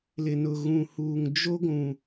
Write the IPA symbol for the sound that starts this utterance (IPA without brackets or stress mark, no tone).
l